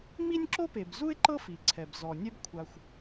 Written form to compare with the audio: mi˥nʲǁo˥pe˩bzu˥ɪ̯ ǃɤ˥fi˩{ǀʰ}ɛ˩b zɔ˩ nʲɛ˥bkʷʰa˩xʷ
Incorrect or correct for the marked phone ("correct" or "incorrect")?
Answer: correct